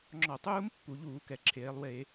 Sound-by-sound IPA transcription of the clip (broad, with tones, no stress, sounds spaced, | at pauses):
ŋ͡ǁ ɔ˧˩˧ tˤ uː˦˥ m pː u˩˧ ʎ uː˧˩˧ k ɛ˩ ǁʰ eː˩˧ lˠ w e˧˩˧